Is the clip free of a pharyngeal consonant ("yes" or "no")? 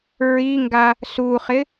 yes